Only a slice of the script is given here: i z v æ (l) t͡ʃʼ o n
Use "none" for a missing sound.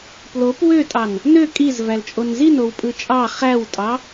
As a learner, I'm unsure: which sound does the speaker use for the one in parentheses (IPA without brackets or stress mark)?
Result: l